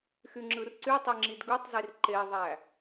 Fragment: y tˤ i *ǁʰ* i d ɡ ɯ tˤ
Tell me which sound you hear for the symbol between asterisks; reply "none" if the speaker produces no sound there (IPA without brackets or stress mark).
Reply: ŋ͡ǁ